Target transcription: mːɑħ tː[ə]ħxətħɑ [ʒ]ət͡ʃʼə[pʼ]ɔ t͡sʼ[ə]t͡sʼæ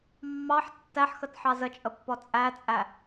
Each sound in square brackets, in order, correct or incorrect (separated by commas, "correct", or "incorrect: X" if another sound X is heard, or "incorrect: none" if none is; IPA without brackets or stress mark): incorrect: æ, incorrect: z, incorrect: pː, incorrect: æ